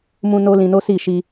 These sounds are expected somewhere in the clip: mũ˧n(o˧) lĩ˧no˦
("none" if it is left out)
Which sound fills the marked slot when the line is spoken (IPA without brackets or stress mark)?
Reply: o˧